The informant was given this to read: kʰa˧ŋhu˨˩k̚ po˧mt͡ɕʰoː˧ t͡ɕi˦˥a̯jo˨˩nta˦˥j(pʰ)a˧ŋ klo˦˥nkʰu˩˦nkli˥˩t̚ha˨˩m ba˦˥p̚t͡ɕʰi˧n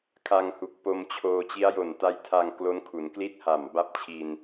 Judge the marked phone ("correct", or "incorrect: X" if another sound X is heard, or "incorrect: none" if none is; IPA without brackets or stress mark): incorrect: tʰ